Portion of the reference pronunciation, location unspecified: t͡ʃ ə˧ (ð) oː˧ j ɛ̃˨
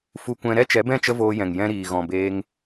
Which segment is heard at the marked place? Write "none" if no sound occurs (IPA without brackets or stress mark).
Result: v